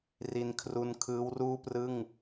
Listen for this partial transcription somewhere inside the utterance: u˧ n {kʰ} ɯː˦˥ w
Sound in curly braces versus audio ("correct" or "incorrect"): correct